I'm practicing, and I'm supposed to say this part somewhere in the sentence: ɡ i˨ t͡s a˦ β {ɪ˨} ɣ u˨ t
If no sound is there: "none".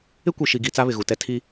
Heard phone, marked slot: ɪ˨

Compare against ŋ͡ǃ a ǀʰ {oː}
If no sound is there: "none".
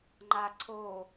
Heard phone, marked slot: oː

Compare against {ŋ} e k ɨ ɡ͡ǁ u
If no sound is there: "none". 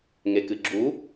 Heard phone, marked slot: ŋ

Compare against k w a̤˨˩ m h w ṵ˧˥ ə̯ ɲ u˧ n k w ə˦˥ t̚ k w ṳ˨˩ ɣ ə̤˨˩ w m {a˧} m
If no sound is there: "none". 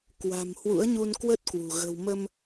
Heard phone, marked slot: ə˧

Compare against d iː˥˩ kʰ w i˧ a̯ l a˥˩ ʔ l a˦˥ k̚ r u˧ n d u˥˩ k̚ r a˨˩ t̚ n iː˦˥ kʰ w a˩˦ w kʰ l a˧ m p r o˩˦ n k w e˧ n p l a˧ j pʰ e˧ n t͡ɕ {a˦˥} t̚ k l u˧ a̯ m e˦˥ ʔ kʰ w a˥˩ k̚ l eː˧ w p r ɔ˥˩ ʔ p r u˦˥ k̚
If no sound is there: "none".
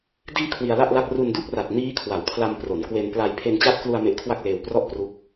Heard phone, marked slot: a˦˥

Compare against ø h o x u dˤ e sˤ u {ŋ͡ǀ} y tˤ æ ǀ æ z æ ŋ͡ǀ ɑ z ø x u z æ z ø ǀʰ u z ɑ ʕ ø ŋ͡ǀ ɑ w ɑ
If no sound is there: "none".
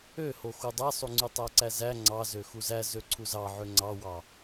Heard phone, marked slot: ŋ͡ǀ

